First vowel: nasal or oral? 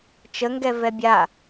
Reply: oral